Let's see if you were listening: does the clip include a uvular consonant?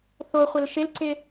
yes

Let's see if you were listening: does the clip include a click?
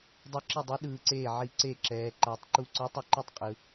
yes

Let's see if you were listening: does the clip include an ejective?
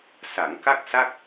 no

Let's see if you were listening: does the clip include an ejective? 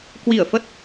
no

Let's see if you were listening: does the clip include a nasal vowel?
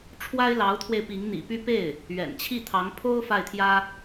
no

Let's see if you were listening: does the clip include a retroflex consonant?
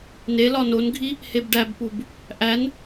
yes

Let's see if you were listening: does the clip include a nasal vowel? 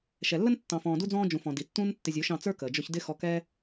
yes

